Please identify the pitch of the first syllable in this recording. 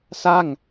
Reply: falling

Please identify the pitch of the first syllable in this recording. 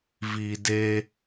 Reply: low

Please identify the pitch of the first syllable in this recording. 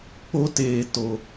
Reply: high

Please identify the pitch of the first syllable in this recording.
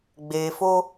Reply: low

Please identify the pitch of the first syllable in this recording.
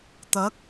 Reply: rising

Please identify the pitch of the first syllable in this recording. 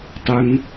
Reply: low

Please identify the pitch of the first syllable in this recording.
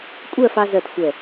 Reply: falling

